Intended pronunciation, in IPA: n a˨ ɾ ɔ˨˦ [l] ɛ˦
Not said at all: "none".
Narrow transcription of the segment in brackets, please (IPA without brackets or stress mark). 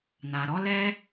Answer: l